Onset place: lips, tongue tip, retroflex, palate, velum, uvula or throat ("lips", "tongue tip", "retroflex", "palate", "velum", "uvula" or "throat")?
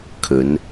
velum